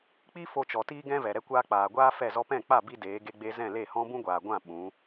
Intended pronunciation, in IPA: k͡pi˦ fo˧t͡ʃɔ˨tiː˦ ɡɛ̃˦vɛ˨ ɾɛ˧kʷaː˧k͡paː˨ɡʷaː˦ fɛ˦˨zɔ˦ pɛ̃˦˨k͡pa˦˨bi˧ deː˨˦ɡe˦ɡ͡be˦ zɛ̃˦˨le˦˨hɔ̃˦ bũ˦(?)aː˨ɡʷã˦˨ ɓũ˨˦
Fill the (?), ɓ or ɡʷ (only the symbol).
ɡʷ